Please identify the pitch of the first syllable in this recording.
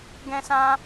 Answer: high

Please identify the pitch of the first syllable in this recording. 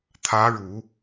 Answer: rising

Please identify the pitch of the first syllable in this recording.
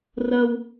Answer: high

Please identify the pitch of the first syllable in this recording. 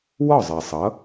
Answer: falling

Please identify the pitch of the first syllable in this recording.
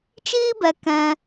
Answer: high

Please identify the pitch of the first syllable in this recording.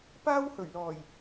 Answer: high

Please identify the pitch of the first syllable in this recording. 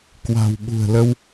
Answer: low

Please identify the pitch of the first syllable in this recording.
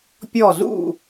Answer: falling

